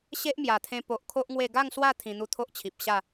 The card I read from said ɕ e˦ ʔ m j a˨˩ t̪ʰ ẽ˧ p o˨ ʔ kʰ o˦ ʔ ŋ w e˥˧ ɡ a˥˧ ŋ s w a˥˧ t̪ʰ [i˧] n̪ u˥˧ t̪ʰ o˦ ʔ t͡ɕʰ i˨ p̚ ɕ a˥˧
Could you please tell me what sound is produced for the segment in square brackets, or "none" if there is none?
ĩ˧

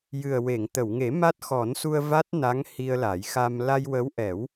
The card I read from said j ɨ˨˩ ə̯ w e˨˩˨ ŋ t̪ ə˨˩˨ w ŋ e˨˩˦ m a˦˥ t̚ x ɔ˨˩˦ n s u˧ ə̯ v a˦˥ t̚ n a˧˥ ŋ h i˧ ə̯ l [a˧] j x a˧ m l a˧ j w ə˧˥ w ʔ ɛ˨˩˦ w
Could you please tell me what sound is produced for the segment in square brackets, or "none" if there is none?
a˨˩˦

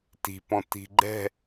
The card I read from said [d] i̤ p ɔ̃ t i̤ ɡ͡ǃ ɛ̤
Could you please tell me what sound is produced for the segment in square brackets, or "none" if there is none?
t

